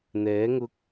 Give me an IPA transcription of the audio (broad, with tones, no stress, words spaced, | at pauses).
n̪ɛː˨˥ŋʊ˧k̚